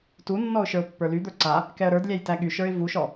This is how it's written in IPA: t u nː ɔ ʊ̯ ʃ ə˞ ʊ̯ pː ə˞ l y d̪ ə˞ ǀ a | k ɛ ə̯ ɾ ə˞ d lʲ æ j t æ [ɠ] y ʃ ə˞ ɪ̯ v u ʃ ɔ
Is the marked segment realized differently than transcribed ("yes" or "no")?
no